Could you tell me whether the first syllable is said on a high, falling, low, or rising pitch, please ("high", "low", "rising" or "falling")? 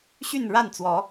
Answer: falling